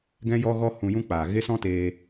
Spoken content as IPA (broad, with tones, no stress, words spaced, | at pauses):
ɡɛ̃˦jɔ˦ɣɔ˦ hũ˧jũ˦k͡paː˨ ɣe˦sɔ̃˦teː˧